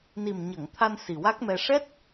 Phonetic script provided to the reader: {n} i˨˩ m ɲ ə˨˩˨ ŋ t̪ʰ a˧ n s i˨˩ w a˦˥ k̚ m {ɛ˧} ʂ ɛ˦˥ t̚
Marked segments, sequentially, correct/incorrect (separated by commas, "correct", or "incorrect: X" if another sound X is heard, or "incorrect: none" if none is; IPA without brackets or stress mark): correct, correct